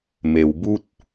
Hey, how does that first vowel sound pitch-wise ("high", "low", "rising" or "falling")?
low